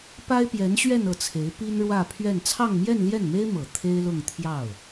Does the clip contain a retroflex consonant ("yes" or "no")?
yes